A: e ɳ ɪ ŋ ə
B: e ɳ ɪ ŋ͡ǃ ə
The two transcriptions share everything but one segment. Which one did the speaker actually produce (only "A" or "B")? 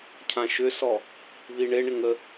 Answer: A